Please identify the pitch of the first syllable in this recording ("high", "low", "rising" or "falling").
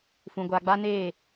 low